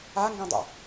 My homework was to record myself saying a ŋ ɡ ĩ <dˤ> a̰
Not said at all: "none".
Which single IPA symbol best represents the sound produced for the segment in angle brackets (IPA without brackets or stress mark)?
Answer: dˤ